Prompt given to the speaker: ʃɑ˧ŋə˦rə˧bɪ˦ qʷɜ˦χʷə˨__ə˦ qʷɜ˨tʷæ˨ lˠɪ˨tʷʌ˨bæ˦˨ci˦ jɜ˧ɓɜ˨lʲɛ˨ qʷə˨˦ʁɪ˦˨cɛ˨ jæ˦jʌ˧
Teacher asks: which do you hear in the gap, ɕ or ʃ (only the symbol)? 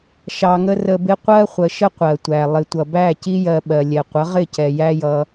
ʃ